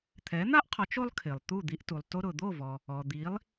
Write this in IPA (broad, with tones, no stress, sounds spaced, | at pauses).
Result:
t̪ʰ ɛ˩˥ n̪ a˥ ʔ qʰ ɔ˩˥ t͡ʃ o˥ lˠ kʰ ɪ˩ lˠ t̪ u˥˩ d̪ i˧ ʔ t u˩ lˠ t o˧ ɾ ʊ˩ d̪ o˥˩ v ɔ˩ | ɔ˩ d̪ i˩˥ lˠ